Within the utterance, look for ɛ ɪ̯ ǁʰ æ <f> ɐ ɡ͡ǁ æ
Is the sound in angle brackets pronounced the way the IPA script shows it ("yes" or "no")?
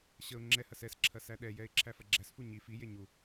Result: yes